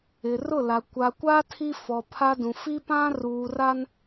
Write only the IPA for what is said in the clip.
ɪ˨ r ʊ˦˨ l a˨ kʷ a˨ kʷ a˦ tʰ i˦ f ɔ˨ pʰ a˦ d ũ˨ f i˦ p ã˦ r uː˨ r a˦ n

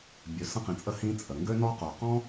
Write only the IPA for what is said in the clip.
bʲ ø˩ s ə̃˧ q ĩ˩ t͡sʼ ə˧ h ĩ˧ t͡sʼ ə˩ ŋ ɡ ø˧ n ɔ˧ q u˩ q ɔ̃˥

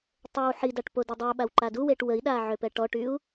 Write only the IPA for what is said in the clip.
tˤ ø w ħ i d a ʈ p o d i dˤ ø u̯ ɓ a w ǃ a d u w e ʈ w ə i̯ ɗ a ʕ ø p ɛ ʈ ɔ ʈ y u̯

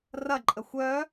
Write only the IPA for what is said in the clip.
r ɐ ǃʼ ə xʷ œ

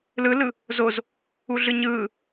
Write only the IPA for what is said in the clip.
l ɯ l ɯ | z o z | u ɮ ɯ ɲ ɯː

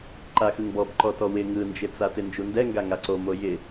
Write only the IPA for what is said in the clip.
ǃ a x ɯ ŋ b ɔ b ǃ ɔ t ɔ w ɪ ŋ ɯ n d͡ʒ ɪ t͡s a t ɪ n d͡ʒ u n d ɛ ŋ ɡ a ŋ a ǀ o m o j ɪ

